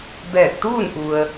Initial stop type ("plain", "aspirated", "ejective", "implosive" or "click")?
plain